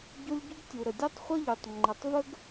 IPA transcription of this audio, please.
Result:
ɟ o˦ lʲ ɟ u˦ ɡ tʲ u˨ ɾ ə˨ dʲ o˦ tˤ χʷ ʌ˦ ʎ o˨ tˤ ŋ͡ǃ ʌ˨ tˤ v ə˦ ɡ

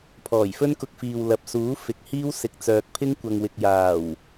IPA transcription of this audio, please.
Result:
pʰ ɔː˨˩ j f ɵ˥ n k ʊ˧ k̚ f iː˨ w l ɐ˨ p̚ s uː˨˥ f ɪ˨˥ k̚ h iː˥ w s ɪ˨˥ k̚ t͡s œː˨ k̚ pʰ ɪ˥ ŋ kʷ ɐ˨ ŋ w ɪ˨ k̚ j aː˨˩ w

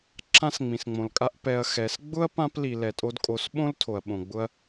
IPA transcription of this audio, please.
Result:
ǁʰ ã˦ s ŋ͡m ĩ˨ s ŋ͡m õ˨ l kʼ a˦ ʔ p ɛ˧ ɐ̯ x ɛ˨˦ s ɡ͡b ʊ˦ ɐ̯ p ã˦ p l i˨ l ɛ˨ tʼ o˧ d kʼ o˨˦ s ɓ õ˦ l tʰ o˨ ɐ̯ ɓ õ˨ ɡ͡b ʊ˦ ɐ̯

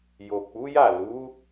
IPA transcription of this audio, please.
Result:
j o˨ k͡p u˨˦ j a˦˨ l u˨˦

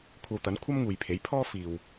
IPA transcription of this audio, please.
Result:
kʷʰ ɐ˧ w t̪ ɐ˨˥ n kʷʰ ɐ˥ m ŋ uː˨ j pʰ e˨˥ j pʰ ɔː˥ f iː˨ w

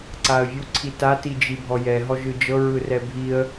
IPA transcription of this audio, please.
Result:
ǀ a ə̯ vʲ u ǀʰ i t a t i d͡ʒ i bʱ ɔ j ɛ ɦ ɔ ʒ ɯ d͡ʒ ɤ ɹ ɯ r ɛ bʱ i ə̯

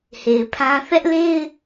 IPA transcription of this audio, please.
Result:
h e˨ ɪ̯ pʰ ã˦ θ ɛ˦ ʔ l e˦ ɪ̯

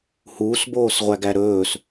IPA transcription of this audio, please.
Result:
h uː s b oː s ʁʷ æ ɡ æ ɾ ɵː s

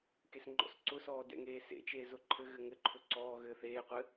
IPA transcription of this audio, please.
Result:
k e s ŋ͡ǃ ɔ̰ s ǀ ʊ s ɔː d ɛ̰ ŋ eː s ḛ t͡ʃ eː z ʊ ǃʰ ɘ ɣ ɘ ŋ ɘ ǃʰ ʊ ǀ ɔː ɣ ɘː θ eː qʷ ɘ

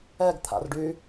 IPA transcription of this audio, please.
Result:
ɛ ɡ t̪ʰ a̰ r ɖ y

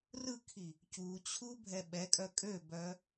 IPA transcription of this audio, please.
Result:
r ɯ kʰ i | c u t͡ɕʰ u bʱ ɛ ɓ ɛ kʼ œ kʼ ø b œ

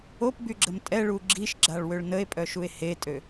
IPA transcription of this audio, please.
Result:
o p b y ɡ͡ǁ ə m tʼ ɛ ɭ u ɡ͡ǁ i ʃ ɡ͡ǁ a ɭ w ø ɭ n ə e̯ pʼ œ ʃ u e̯ h e tʼ ø

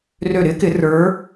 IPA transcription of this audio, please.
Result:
r ø˧˩ ɾ ɪ˨˥ k ɪ˨˩˦ r ə˞˨˥

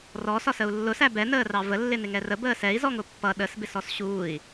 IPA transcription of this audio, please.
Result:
r ɔ s ɒ s ə u̯ lː ʊ s æ b ɛ n əː r ɑ v ə lː ɪ n ɪ ŋ ɛ r ə b əː s ɛ i̯ z ɔ ŋ ʊ pː ʌ ɗ ə s b ɪ s ɔ s ɕ uː i̯

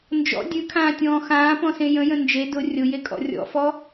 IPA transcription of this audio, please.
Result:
n d͡ʒ ɔ̰ dʲ ʉ kʰ ãː tʲ ɔ̃ː x ãː p ɔ̃ s ẽ j ə̃ j ə̃ n d͡ʒ e d ʊ rʲ ʊ j e kʼ ɔ̰ rʲ ɔ̰ f ɔ

